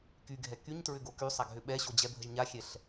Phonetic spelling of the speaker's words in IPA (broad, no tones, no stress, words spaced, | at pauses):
kyɡʱɛ kyɲtɹʏɡo kysˤaɡɦʏ ɓɛɕod͡ʑɛbʱəʒ ɲaxʲɛɬ